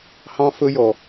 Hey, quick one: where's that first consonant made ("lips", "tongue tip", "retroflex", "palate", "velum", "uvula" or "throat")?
throat